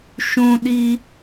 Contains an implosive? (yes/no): yes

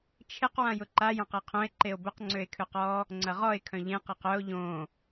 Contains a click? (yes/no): yes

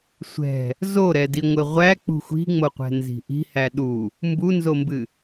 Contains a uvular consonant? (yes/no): yes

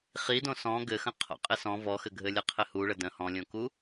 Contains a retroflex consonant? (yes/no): yes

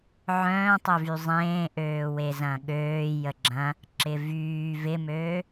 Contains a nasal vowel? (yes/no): yes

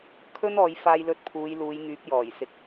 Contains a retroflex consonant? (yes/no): no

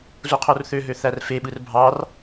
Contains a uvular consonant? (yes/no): yes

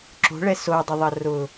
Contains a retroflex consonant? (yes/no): yes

